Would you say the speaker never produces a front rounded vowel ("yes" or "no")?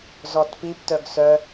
no